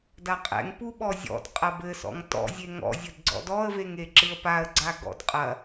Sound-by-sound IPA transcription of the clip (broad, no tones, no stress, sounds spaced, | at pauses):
d a qʼ ɛ̰ ŋ p u ɓ ɔ zʲ ɔ̰ d qʼ ɐ b ɘ s ɔ̰ ŋ t ɔ̰ zʲ e ŋ ɔ̰ zʲ ɘ d ɡ͡ǀ ɔ̰ d ɔ ə̯ v e ŋ e ǁ ɨ ə̯ p a ə̯ ɡ͡ǀ a ɡ ɔ̰ d qʼ ɐ